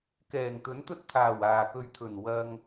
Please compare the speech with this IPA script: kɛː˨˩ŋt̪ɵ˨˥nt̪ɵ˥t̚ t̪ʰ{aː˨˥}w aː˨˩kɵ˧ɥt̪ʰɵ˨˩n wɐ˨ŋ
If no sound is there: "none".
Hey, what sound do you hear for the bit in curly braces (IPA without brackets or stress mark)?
aː˨˩